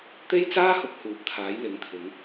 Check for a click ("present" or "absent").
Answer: absent